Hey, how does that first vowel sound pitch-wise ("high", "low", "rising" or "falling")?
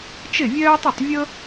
falling